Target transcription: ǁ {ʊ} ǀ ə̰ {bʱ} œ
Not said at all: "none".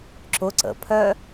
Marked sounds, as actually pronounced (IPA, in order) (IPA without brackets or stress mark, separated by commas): ʊ, pʰ